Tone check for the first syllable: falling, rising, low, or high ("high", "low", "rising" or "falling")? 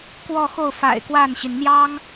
falling